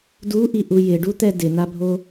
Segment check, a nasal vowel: absent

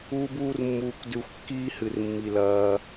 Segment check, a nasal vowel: absent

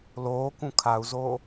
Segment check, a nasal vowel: present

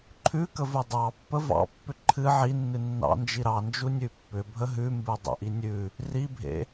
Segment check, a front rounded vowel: present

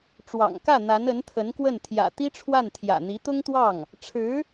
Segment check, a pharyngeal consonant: absent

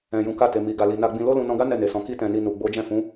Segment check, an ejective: absent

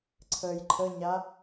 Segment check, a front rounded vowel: absent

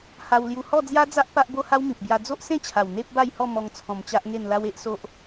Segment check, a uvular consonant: absent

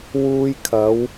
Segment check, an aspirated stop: present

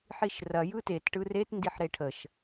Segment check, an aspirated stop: present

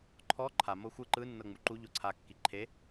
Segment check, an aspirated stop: present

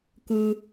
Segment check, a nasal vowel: absent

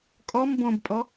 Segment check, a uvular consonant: absent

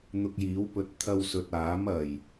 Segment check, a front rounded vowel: absent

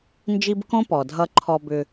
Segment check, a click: present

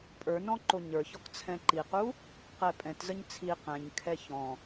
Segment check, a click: present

